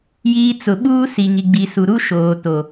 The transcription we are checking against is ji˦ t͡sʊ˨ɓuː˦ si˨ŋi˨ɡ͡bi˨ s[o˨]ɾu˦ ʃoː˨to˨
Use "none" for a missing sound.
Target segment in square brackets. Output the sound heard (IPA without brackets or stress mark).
u˨